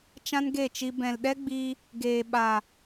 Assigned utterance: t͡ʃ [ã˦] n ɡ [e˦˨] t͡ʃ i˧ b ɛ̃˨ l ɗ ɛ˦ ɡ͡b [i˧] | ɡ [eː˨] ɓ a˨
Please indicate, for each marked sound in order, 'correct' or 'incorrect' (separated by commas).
correct, correct, correct, correct